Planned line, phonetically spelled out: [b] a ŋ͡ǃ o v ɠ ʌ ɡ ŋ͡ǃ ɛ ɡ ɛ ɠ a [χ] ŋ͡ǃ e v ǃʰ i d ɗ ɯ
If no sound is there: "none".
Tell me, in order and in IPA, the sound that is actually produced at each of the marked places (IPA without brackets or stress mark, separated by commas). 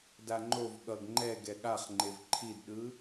d, χ